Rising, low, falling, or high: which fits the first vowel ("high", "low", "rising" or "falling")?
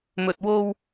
low